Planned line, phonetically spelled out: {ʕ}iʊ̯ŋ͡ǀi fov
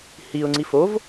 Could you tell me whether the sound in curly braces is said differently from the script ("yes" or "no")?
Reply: yes